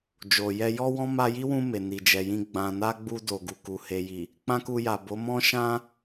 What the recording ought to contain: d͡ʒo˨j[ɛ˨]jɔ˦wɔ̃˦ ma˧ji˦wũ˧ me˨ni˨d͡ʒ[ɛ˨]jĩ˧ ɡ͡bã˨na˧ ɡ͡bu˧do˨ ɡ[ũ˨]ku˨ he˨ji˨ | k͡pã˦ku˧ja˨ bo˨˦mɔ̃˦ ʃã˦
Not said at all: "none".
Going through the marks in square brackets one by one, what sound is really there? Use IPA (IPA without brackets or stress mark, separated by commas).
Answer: ɛ˧, ɛ˨, u˨